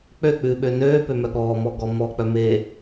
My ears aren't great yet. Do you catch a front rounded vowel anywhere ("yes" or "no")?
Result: yes